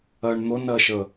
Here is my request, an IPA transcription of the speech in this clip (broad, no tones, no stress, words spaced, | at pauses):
ɜɳn̪ʊnɜʃə